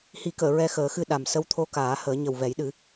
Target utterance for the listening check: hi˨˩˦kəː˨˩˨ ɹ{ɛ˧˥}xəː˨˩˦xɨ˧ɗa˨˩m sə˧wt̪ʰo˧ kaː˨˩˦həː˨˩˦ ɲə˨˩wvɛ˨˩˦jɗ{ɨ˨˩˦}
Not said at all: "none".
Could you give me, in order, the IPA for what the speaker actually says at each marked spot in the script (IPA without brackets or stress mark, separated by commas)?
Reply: ɛ˧, ɨ˨˩˦